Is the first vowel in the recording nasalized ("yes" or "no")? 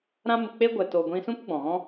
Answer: yes